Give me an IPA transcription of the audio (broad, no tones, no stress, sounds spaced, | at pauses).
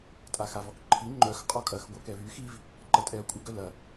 tʼ a x a v ɔ k ǃʰ i ŋ͡ǃ œ x qʼ ɔ kʼ ɐ x ɡʷ œ k ɛ v y x i v | ǃ ɐ tʼ ɛ ɐ̯ kʷʼ ɪ ɡ œ l ɐ